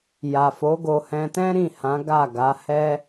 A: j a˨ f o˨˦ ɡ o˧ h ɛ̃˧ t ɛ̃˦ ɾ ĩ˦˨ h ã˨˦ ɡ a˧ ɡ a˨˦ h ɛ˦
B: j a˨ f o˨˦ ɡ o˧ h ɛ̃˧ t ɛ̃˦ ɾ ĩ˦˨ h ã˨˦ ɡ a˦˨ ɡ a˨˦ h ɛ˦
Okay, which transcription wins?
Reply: B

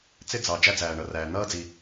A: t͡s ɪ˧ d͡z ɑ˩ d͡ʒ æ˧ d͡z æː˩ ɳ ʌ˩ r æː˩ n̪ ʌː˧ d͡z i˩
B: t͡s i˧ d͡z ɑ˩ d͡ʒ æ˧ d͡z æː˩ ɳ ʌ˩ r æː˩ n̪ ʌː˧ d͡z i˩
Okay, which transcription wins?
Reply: A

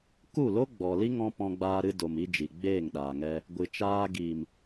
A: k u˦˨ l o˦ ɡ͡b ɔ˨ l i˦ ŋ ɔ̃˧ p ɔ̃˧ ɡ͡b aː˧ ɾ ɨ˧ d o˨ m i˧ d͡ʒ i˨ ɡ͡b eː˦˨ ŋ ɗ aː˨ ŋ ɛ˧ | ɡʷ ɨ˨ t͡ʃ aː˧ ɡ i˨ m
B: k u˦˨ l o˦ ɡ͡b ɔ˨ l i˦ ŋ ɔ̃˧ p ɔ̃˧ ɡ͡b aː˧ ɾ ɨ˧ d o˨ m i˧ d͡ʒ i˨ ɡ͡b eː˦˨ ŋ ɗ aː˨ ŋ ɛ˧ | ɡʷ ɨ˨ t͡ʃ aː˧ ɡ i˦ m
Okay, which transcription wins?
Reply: A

